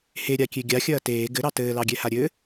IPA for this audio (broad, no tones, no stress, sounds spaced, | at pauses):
h e ɾʲ a kʲ e ɡʲ a xʲ ɐː t eː ɡ ɘ ɾ ɑ t ɘː l ɑ ɡʲ ɛ h a ɾʲ ɘ